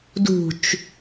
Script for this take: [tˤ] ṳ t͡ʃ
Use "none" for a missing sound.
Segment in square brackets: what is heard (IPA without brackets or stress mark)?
d